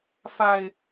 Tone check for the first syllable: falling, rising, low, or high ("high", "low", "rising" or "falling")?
low